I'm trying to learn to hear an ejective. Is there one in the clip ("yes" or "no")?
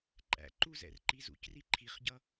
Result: yes